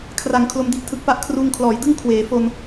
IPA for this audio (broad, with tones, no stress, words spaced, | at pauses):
kʰra˩˦ŋ kʰlo˦˥mdi˥˩ʔtʰɯ˦˥k̚pa˥˩ʔ kʰruː˧ŋkʰlɔː˩˦jdɯ˥˩ŋ kʰweː˩˦fo˧n